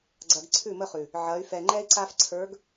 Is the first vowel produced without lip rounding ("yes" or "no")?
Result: yes